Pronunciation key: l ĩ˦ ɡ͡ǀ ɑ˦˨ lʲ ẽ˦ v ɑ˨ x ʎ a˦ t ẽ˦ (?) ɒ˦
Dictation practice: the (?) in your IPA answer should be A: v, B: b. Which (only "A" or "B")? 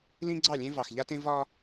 A